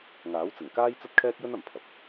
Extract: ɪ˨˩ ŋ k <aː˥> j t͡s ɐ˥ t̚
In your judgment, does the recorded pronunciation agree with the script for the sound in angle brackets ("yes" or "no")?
yes